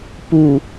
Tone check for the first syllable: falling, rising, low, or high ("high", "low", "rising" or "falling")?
low